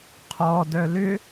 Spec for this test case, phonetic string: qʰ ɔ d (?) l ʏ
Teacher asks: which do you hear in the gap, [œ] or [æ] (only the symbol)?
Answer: œ